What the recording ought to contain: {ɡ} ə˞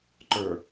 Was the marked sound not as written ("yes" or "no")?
yes